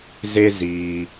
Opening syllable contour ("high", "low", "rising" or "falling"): high